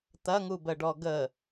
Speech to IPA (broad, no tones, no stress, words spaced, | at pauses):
t̪ɐŋubəɖɔ ɡə